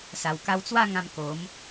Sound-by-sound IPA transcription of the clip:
s a˨˩ w k a˧ w t͡s w a˥˧ ŋ ã˧ m k o˨˦ m

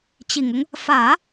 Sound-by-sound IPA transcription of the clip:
t͡ɕ i˨˩ ŋ ʊ˦ ŋ | f ä˨˩˦

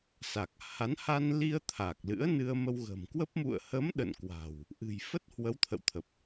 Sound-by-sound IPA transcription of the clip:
s a˨˩ k̚ h a˨˦ n h a˧ n l i˧ ə̯ t̪ʰ a˨˩ k̚ l ɨ̰˧˥ ə̯ n ɨ˧ ə̯ m ə˧ w ɣ ə̤˨˩ m k w ə˦˥ p̚ m ṵ˧˨ ə̯ h ə˨˦ m ɗ ə̰˧˨ n k w a̤˨˩ w | ʔ ɨ̤˨˩ j f ə˦˥ t̚ h w ə˨˦ w t̪ʰ ə̰˧˨ w t̪ʰ ə˨˩ p̚

